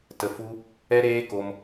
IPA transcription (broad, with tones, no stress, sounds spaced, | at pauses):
t ə˧ f u˦ | ɛ˦ ɾ eː˦ k o˧ m